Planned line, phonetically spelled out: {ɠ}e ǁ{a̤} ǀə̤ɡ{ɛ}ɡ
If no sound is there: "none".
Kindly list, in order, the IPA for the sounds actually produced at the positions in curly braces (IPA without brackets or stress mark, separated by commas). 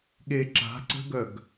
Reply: ɠ, a̤, œ